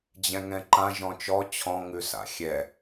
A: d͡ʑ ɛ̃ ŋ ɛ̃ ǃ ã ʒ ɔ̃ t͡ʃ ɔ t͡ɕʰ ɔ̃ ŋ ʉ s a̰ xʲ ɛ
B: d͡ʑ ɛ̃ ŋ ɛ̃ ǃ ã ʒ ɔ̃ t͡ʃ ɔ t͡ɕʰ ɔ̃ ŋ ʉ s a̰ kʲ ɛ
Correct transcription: A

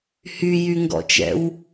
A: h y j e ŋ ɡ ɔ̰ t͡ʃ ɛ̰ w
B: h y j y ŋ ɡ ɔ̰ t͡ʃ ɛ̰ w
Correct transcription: B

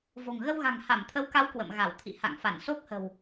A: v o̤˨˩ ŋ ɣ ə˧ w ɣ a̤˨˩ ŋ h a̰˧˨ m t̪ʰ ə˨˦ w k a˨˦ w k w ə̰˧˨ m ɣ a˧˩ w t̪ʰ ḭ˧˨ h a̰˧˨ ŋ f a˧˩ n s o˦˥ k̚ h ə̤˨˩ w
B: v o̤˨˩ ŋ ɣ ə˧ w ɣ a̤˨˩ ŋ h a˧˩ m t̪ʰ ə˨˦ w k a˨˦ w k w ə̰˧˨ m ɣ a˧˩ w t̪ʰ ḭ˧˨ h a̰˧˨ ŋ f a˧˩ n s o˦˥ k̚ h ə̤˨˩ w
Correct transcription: B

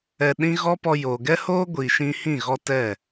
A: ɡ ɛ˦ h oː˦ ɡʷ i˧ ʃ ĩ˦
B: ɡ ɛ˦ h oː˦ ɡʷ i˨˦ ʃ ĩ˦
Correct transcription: A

